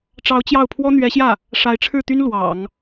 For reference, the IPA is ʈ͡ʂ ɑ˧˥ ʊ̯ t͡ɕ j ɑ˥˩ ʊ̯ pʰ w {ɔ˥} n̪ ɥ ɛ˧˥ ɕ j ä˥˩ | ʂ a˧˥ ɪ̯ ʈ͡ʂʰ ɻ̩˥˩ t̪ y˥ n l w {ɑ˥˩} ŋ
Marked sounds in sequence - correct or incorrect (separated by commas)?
correct, incorrect